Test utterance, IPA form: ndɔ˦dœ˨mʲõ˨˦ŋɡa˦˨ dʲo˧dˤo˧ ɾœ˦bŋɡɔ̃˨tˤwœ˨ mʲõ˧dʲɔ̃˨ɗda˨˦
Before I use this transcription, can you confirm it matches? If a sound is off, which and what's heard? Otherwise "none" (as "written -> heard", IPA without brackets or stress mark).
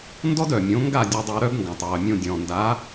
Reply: ɗ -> n